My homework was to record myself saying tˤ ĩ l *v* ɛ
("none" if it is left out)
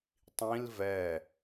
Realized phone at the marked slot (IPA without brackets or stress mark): v